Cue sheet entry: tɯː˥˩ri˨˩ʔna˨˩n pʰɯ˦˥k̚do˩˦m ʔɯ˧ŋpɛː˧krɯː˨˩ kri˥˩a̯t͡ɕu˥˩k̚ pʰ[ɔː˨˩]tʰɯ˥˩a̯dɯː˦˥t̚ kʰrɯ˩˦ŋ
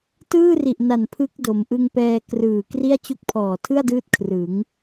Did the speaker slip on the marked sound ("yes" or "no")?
no